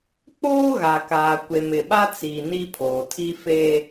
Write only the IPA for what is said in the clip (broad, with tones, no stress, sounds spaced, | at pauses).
k͡p oː˦ ɣ a˨ k aː˨ kʷ e˨ m ɪ˨ ɓ a˦ t͡s iː˨ n i˦ pʰ oː˨ tʰ i˦ f e˦